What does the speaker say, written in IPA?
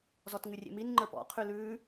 z ɔ t ŋ ʉ rʲ ḛ m i n ŋ͡ǃ ə˞ p ɔ̰ qʰ ʉ l ʉː

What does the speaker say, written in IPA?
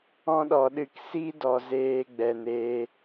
ɔ̃˦ ɗ ɔ˨ ɗ ɨ˦˨ k s i˦ d ɔ˨ z eː˧ ɡ͡b ɛ˨ n eː˧

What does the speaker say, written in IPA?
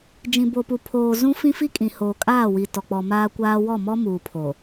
d͡ʒ ĩ˨ b o˨ p u˨ pʰ oː˨ z ũ˦ f ĩ˦ f i˦ kʼ ĩ˨ h oː˨ kʼ aː˦˨ w i˨ t ɔ˨ k͡p ɔ˨ m aː˦ kʷ aː˦ w ɔ˦˨ m ɔ˦ m uː˨ pʰ o˨

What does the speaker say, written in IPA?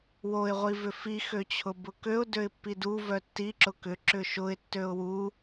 w o ɪ̯ ʁʷ i v ʏ f i x ø t͡ɕʰ ʊ b ʊ k ø ʊ̯ d ø ɪ̯ pː i d u v œ tː i ǁ ʊ k ʏ ǁ ʏ ʃ ʊ ɪ̯ tː ø ʊ̯ w u

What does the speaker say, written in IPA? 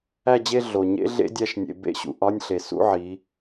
æ˥˧ d͡ʑ e˥˧ ɮ o˩ ɲ ḛ˦˥ ɮ ḛ˦˥ dʲ æ˧˥˧ ʃ nʲ ḛ˩˧ b ḛ˥˧ ɕ ṵ˩˧ ʔ ɒ˧˥˧ nʲ ɬ e˩ s ṵ˧˥˧ ʕ i˩˧

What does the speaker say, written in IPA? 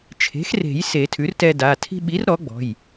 t͡ʃʰ e̤˩˥ x r e̤˨˩˦ j s e˨˩˦ tʰ ʉ˩˥ r t ɛ˧ d a˩˧˩ tʰ i̤˧ ɓ i˩˥ r ɾ ɔ˩˥ ɡ͡b ɔ̤˩˧˩ j

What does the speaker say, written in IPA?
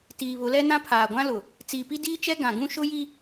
t iː˨ β ʊ˨˦ l ɛ˦ n ã˦ pʰ aː˨ ɡʷ ã˦ l ʊ˨ | t͡s iː˨ p i˦ d iː˦ t͡ʃ ɛ˦ ɡ ã˨ ɡ ũ˦ ʃ ʊ˦ j i˦

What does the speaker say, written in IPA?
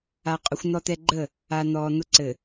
a˨ qʼ ʊ˨ xʷ n̪ ɔ˨ t̪ ɛ˨ ɡ͡ǃ ə˦˨ | a˨ n̪ ɔː˨ n̪ ʊ˦ ǀ ɘ˨

